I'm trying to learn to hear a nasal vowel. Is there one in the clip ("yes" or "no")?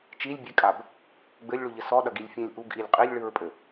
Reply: yes